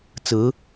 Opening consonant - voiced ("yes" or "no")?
no